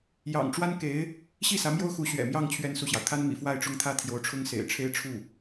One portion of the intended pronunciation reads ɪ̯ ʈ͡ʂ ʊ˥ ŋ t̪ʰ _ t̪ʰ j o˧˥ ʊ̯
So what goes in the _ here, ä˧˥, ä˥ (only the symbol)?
ä˥